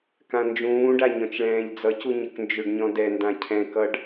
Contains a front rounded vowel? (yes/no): yes